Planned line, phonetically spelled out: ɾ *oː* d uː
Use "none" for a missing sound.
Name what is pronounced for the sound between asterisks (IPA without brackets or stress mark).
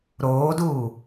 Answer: oː